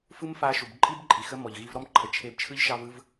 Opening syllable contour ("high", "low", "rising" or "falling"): high